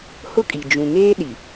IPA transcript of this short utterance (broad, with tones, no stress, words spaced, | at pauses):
hʊ˦kʼi˨ d͡ʒũ˨ŋeː˦ ɗi˨